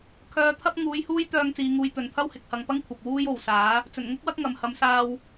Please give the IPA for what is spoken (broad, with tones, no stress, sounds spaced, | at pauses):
kʰ œː˧ t̪ʰ ɐ˥ p̚ ŋ uː˨˥ j h uː˥ j t̪ œː˧ ŋ t͡s iː˨˧ ŋ uː˧ j t̪ ɵ˨ n t̪ʰ ɐ˥ w h ɪ˨ k̚ h ɐ˨ ŋ p ɐ˥ ŋ kʷʰ ɐ˨ p̚ w uː˥ j o˨ w s aː˨˥ | t͡s ɵ˨˩ n ŋ ʊ˥ k̚ w ɐ˥ k̚ ŋ ɐ˨ m h ɐ˨˧ m s aː˧ w